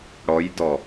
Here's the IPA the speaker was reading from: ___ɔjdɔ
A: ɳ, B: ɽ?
B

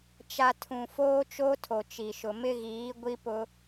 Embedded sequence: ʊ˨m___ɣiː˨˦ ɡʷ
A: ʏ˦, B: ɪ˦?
B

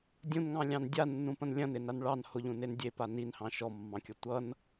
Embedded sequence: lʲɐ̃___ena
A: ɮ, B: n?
B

